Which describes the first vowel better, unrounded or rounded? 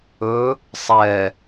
rounded